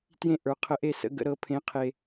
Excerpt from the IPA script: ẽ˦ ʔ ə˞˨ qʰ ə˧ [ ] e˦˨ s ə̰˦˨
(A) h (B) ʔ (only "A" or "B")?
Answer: B